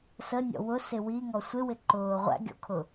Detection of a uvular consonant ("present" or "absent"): present